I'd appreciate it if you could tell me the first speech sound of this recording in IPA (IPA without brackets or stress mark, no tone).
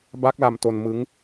b